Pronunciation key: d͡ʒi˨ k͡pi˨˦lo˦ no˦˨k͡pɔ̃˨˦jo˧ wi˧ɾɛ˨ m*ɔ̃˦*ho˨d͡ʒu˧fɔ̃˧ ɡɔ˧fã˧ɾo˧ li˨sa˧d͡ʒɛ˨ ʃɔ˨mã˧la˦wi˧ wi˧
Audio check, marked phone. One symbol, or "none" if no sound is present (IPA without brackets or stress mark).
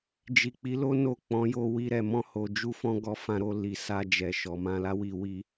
ɔ̃˧